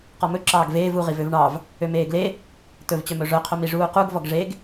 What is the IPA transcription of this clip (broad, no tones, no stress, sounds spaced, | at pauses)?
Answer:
q ɔ m ɵ ǁ ɑː ɡ v eː v u ʁ i v ø v ɳ ɑ v | ø m eː ɡ l e | t ɵ v t͡ɕ œ m ɵ ʐ œ qʰ o m i ʐ uː q u ɡ v ɔ ɡ ʐ e ɡ